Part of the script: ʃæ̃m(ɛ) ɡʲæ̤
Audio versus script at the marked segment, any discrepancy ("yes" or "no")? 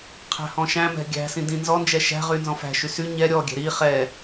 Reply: yes